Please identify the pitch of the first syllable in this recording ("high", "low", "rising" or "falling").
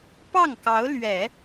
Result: falling